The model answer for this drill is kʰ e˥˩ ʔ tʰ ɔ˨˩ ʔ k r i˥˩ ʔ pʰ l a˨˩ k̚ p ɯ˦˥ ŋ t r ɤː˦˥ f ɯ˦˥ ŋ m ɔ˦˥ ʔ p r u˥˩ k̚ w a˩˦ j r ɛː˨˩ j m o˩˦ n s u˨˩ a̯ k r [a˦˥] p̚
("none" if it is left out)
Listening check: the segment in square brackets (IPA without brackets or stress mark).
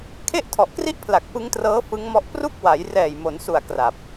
a˨˩